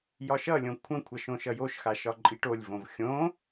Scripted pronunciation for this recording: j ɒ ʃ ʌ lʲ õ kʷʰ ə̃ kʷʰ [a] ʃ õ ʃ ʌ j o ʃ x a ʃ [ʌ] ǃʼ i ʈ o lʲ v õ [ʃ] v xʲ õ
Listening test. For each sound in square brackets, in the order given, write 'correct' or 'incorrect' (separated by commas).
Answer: incorrect, incorrect, incorrect